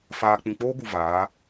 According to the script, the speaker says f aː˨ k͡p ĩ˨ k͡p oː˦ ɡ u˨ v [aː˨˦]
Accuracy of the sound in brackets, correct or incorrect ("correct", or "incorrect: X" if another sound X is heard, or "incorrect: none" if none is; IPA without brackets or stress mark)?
correct